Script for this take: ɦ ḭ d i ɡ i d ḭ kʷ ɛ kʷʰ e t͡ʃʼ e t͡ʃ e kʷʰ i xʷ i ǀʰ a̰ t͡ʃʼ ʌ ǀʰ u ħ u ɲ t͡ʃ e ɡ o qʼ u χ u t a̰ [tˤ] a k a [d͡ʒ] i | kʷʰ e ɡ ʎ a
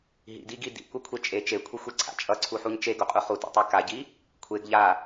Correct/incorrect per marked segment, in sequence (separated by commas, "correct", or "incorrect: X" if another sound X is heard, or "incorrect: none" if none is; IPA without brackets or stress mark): correct, incorrect: ɟ